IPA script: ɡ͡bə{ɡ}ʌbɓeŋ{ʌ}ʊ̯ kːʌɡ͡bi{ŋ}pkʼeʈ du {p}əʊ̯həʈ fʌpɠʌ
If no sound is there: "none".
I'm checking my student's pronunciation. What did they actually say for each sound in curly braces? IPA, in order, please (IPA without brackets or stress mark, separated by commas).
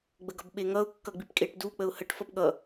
ɡ, ʌ, none, k͡p